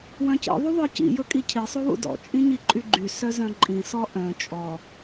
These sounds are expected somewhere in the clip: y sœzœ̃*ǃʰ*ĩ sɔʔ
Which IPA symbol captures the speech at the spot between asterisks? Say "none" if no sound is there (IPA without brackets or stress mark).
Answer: ǃʼ